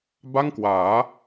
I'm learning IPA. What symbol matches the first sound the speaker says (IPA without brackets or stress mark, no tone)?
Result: b